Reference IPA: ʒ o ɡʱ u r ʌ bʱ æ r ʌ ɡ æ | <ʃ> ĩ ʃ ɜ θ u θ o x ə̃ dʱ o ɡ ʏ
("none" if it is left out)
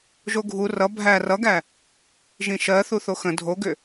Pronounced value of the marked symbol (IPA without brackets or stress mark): ʒ